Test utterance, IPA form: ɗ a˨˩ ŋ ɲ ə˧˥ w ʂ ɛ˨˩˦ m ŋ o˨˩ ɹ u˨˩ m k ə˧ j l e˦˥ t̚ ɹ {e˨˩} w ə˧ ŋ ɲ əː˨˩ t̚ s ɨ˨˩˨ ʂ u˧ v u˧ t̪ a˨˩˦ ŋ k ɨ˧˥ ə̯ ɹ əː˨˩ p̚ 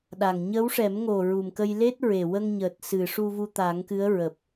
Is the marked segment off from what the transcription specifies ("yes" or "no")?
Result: no